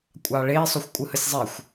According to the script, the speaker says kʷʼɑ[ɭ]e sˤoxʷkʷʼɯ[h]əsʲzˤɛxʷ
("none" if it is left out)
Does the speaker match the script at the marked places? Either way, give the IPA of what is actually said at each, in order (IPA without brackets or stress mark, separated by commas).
ɭ, h